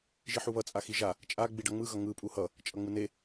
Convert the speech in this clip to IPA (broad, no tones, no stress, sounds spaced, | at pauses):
ʒ i ħ u β ʌ t͡sʼ a x i ʒ a | t͡ʃʼ a ɡ͡b i ɖ ʌ ŋ͡m ɯ ɣ ʌ ŋ ɯ pʼ u h ʌ | t͡ʃʼ ʌ ŋ͡m ɯ n e